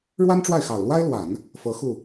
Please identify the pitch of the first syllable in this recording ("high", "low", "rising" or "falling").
high